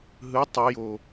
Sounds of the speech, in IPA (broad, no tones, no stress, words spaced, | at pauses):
ɦɯ tˤujo